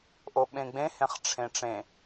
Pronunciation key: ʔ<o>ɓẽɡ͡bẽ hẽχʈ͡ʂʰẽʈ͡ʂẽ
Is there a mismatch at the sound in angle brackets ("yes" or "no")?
no